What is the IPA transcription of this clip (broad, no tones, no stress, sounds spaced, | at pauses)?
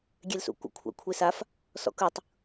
ɡʲ e l s ṵ kʷ ə̰ kʷʰ a̰ kʷʰ e s a f | s ɔ̰ k ɯ tˤ